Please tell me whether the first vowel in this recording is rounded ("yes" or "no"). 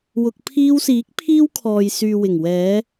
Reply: yes